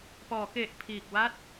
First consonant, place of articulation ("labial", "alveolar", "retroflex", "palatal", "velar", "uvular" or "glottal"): labial